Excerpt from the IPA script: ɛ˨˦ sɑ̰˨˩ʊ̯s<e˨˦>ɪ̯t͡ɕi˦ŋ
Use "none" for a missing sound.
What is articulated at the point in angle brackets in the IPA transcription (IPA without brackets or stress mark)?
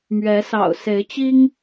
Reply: e˨˦